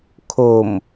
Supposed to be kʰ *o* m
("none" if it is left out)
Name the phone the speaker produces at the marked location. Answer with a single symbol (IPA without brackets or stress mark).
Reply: o